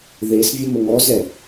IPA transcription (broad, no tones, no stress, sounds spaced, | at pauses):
ð e s vʲ ə m ə ŋ ɔ z ɛ